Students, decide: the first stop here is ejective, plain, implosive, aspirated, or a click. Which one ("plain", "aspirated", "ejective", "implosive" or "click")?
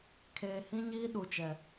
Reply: aspirated